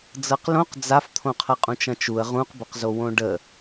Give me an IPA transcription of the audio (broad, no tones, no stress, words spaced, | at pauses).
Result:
d͡zɤqlõq d͡zaft̪ʰõ qʰɐqʼũt͡ʃɐ̃t͡ʃuə̯ ʁũqbɐqzowõ ɖə